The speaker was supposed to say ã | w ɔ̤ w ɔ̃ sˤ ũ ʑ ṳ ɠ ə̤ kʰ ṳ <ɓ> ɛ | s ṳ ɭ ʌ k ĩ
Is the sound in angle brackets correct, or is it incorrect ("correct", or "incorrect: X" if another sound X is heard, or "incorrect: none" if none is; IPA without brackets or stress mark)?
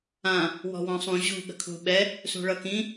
correct